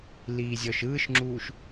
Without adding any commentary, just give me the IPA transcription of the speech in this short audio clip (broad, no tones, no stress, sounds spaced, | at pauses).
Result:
l iː zʲ ɔ ʃ ɯː ʃ ŋ͡ǁ uː ʃ